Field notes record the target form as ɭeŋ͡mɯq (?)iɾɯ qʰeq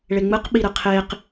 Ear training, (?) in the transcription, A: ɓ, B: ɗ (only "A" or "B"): A